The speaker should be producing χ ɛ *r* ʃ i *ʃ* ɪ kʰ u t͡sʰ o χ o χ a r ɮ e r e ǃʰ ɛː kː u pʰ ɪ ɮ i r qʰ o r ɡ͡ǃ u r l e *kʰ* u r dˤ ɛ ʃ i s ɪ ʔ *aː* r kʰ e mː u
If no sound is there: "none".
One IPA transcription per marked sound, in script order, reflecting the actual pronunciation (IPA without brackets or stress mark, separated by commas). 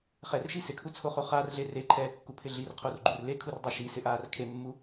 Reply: r, s, kʰ, aː